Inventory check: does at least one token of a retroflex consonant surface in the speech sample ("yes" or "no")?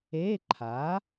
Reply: no